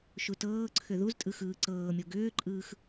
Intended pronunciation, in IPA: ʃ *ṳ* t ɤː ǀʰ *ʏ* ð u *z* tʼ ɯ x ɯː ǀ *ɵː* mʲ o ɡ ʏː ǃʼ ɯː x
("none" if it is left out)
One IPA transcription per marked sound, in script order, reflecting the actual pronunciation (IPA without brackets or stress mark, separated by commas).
u, ʏ, z, ɤː